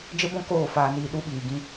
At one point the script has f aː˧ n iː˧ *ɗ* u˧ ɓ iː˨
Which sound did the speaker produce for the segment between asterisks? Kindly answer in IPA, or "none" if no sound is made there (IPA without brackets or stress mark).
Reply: ɗ